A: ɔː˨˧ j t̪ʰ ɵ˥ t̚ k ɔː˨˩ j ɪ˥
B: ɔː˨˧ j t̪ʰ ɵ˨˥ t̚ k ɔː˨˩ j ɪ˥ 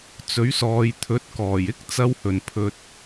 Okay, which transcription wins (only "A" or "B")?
B